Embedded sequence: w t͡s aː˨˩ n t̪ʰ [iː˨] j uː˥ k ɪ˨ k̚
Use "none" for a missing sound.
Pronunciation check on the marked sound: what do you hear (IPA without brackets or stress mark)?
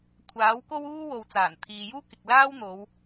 iː˨